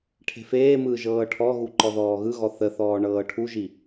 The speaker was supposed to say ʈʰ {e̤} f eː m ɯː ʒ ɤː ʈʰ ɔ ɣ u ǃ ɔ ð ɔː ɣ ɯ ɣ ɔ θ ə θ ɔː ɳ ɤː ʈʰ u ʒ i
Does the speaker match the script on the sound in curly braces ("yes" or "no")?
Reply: yes